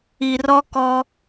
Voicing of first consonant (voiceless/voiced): voiced